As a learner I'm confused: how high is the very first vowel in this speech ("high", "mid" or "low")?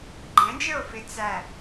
mid